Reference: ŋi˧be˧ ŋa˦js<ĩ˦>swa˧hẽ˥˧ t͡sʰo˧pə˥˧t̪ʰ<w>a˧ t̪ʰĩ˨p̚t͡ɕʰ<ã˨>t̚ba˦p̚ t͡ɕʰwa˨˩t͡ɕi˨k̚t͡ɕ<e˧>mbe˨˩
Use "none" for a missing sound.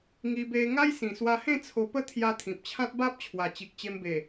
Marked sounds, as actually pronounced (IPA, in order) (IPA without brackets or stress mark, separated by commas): ĩ˨˩, j, ã˦, e˧